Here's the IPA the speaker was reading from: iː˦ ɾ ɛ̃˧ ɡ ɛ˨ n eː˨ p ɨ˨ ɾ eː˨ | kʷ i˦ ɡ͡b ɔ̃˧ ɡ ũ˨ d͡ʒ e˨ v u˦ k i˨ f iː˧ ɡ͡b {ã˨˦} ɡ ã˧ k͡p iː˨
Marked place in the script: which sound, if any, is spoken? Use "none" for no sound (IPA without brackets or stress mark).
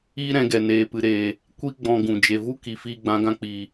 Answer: ã˨˦